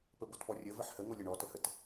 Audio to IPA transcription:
pəbotpɔrʲə vəħhə ŋolʲəɳɔ təhət

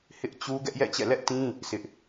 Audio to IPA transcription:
hɪ˦ʔt͡ɕu˦ ɡɛ˦ʔjɛ̰˦˨t͡ɕɛ̰˦˨ lɛ˦ʔtĩ˦ | sɪ˦ʔ

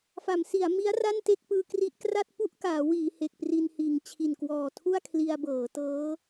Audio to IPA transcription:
fa˩˦msi˩˦a̯mi˦˥a̯ ra˥˩nte˥˩k̚ pɯː˧kri˦˥ʔ kra˥˩t̚ pu˥˩ʔkaː˩˦ wiː˩˦ he˨˩k̚pri˧nhiː˨˩ŋ t͡ɕʰi˨˩nkwɔː˨˩tʰu˥˩a̯kʰli˧a̯ bɤː˩˦tɤː˦˥

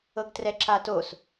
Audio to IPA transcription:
ɤɡtrɛǁatos

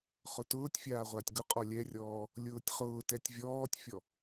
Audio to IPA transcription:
χʊtʊːtʲfʲaː ʁʷatʲɡʊqʼɔ lʲɛrʲɔː | lʲʊːtʲχʊːtɛtʲ vʲɔːtʲfʲɔ

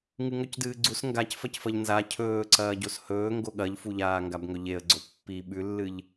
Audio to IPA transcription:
ŋɨŋɵcdɨːɡ͡ǀus ŋɡacfɐcfɐʎ nza cʰɵːǀɐː ɟoshɵː ŋɡoɠɐʎfuʎaː ŋɡabŋɵʎeə̯ɡ͡ǀo pːi ɓʉlːɨʎ

